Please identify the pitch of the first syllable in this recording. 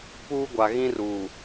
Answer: high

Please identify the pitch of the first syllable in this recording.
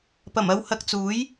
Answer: low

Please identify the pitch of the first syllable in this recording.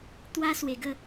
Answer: high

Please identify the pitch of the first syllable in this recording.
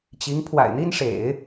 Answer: rising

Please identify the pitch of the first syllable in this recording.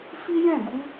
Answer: high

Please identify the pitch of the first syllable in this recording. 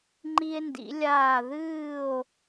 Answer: high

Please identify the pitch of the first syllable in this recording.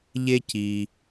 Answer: high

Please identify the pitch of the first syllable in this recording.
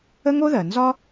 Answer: high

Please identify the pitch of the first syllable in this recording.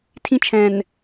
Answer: high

